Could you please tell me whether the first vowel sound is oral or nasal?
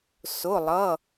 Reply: oral